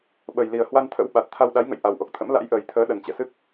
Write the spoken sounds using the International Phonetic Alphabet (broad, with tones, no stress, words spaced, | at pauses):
ɓə˨˩jli˨˩ə̯ hwa˧nt̪ʰə̰˧˥w ɓa˨˩t̚t̪ʰa˧w ɗa˨˦jŋə̰˧˨j ʔa˨˩wʔo˨˩k̚t̪ʰə̰˧˥m la̰˧˥jʔəː˨˩jt̪ʰəː˨˦ ɗə˨˩nt͡ɕɛ̰˧˨sɨ˦˥k̚